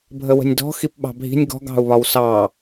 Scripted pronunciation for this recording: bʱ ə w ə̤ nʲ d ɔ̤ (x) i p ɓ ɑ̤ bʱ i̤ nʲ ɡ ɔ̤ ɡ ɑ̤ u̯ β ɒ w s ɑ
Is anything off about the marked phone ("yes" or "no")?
no